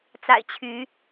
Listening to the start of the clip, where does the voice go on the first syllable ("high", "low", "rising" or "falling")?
low